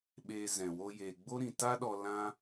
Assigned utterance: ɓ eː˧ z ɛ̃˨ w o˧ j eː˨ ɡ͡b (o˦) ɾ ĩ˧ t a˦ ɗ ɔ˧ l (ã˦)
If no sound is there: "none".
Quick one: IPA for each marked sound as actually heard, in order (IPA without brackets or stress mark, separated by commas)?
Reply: o˦, ã˦